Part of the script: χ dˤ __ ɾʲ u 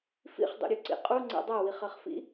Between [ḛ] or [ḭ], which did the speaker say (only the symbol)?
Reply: ḭ